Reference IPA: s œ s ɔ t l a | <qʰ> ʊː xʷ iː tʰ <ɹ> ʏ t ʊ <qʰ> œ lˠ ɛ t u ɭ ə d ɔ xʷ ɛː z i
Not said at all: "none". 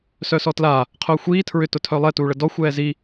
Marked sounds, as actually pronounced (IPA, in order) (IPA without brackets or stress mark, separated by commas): qʰ, ɹ, tʰ